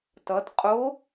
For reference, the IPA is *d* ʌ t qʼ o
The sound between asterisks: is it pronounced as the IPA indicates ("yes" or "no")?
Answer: no